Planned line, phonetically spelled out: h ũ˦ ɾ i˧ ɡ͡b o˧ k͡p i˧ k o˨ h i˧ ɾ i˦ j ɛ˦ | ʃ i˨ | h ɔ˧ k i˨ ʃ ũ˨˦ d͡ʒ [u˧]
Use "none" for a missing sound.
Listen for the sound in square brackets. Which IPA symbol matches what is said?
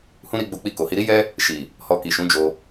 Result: o˧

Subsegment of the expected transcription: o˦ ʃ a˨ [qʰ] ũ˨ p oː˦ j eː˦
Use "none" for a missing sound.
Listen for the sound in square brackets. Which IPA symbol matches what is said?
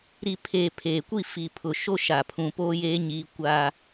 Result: pʰ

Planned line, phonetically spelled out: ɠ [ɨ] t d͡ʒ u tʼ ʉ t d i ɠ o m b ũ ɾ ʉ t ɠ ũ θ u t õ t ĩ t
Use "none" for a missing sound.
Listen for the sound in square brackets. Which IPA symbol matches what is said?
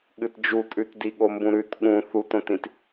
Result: ɨ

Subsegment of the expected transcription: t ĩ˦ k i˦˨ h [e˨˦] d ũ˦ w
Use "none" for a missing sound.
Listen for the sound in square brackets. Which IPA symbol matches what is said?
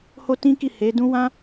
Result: e˨˦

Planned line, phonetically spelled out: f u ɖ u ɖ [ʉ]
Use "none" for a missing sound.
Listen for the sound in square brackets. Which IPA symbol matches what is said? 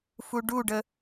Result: ə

